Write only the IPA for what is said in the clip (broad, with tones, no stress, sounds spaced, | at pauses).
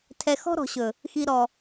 tʰ ɛ˨ x ɔ̤˦ ɾ ɔ̤˨ ɕ ɵ˨ | x i˨ ɾ ɔ˨